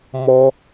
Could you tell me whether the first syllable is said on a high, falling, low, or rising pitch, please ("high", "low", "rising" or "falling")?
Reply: high